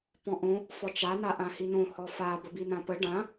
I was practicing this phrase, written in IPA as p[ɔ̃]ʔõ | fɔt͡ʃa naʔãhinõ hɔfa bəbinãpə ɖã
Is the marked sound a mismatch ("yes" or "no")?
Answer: no